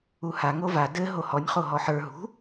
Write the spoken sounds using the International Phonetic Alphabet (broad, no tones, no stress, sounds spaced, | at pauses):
u h a ŋ o v a d ɘ ɦ o h ɔ nʲ χ o ɦ ɔ ħ ə˞ ɦ ṳ